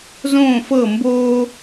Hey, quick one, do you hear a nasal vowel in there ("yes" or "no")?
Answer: yes